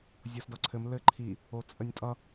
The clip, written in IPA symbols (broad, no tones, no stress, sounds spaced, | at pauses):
zʲ o s d ʌ ǀʰ ɘ m l ɘ ǃʰ i | o t͡sʼ ə nʲ tʼ ʌ